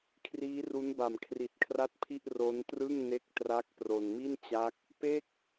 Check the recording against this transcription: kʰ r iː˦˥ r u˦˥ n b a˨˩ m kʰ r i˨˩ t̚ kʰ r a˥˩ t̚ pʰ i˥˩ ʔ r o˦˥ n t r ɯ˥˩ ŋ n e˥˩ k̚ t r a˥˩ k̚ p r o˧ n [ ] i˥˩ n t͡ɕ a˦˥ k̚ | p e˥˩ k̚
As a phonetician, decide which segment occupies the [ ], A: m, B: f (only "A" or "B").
A